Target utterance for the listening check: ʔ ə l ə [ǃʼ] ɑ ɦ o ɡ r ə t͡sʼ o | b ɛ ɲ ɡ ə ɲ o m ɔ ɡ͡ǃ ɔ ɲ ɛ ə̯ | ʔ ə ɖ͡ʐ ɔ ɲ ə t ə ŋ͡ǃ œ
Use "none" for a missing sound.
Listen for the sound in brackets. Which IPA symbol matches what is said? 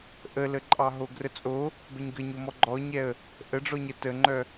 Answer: ǃʼ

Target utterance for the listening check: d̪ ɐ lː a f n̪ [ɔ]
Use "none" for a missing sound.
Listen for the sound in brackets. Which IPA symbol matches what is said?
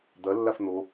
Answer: o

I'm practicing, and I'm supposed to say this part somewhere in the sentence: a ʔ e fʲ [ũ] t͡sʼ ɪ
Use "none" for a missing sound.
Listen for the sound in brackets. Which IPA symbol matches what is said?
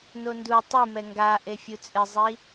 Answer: u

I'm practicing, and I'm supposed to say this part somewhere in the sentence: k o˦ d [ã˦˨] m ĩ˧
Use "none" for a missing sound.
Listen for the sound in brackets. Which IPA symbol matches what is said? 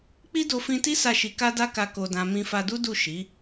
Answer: ã˦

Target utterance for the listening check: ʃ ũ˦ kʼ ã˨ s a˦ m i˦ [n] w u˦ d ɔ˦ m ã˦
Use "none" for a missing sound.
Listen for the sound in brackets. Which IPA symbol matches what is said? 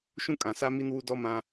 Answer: n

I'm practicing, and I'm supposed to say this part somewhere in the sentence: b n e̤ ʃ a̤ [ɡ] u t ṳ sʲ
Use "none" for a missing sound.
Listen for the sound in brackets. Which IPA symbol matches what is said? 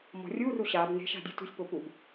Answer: dʲ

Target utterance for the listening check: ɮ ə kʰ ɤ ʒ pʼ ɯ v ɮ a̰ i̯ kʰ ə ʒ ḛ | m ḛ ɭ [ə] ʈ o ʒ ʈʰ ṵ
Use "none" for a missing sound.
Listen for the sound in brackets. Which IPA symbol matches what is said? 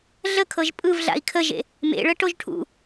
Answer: ə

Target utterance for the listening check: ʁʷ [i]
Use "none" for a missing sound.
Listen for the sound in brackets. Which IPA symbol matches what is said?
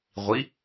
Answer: i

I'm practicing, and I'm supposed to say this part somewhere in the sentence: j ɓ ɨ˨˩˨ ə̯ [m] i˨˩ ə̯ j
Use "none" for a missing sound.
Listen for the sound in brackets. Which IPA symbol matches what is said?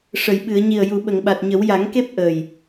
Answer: ɲ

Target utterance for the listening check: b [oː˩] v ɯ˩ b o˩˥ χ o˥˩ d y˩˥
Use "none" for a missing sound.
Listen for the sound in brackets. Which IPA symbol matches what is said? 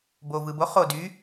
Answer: oː˩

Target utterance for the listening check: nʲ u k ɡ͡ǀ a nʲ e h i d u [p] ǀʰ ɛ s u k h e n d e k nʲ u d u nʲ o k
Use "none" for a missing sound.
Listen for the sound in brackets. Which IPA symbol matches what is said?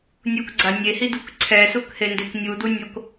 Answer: k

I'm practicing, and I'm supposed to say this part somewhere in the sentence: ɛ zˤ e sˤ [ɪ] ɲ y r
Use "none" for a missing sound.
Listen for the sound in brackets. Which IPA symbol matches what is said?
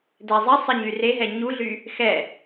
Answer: ɪ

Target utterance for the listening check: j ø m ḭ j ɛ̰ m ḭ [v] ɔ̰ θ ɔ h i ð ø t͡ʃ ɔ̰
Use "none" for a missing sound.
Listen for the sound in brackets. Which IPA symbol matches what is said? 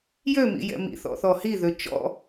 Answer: θ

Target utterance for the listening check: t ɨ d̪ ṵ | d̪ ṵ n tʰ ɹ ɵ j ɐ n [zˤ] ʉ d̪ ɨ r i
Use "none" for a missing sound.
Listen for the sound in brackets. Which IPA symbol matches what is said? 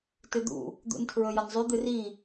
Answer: zˤ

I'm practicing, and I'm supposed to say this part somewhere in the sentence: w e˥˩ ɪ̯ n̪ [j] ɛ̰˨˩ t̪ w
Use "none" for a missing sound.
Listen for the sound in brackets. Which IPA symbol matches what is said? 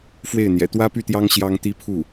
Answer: j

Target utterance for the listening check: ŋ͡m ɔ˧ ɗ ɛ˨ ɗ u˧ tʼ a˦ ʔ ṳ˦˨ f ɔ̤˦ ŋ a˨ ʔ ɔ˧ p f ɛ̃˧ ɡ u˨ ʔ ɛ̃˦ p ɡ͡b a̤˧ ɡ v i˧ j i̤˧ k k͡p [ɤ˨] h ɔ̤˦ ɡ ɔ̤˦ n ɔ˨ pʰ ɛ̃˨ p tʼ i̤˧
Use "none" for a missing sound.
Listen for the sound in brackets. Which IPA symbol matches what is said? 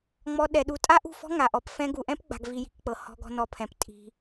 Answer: ɤ˨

